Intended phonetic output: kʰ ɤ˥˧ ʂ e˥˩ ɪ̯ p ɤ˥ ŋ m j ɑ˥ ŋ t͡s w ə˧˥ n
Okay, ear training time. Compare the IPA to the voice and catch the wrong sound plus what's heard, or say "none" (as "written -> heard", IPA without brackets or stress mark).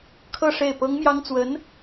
none